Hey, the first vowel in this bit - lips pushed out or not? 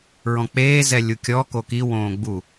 yes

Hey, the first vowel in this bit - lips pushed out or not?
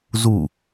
yes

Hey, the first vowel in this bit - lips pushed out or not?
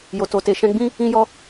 yes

